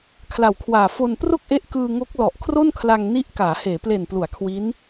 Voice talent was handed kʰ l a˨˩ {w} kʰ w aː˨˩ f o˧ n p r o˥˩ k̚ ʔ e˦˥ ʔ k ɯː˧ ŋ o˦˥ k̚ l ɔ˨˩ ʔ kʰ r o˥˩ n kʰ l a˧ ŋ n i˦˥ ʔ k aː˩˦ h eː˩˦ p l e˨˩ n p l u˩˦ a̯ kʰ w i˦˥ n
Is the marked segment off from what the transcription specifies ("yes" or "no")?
no